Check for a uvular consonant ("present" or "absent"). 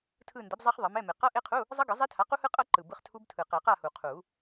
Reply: present